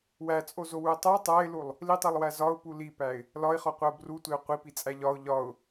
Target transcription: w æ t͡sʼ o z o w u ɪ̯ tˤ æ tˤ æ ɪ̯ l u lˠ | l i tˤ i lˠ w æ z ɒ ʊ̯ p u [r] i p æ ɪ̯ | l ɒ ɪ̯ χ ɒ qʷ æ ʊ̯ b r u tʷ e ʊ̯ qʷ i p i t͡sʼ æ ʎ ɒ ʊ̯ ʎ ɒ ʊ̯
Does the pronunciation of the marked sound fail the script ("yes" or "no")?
yes